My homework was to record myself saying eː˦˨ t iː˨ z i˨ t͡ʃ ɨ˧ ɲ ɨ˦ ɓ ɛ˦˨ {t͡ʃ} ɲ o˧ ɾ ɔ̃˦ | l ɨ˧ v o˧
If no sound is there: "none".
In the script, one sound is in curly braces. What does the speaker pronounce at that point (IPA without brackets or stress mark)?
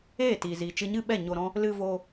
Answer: none